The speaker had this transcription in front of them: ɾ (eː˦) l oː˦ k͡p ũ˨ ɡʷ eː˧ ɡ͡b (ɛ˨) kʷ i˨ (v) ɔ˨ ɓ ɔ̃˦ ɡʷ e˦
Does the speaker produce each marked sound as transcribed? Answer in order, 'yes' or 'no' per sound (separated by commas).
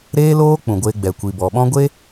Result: yes, yes, no